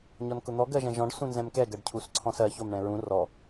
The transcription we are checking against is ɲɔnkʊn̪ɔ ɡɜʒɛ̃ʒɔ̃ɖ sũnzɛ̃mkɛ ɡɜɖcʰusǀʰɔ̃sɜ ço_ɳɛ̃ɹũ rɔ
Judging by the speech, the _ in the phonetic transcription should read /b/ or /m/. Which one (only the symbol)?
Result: m